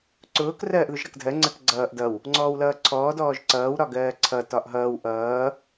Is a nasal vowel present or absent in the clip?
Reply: absent